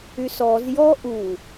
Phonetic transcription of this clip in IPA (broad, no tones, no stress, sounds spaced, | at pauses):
y s ɔ z j ɔ ʔ u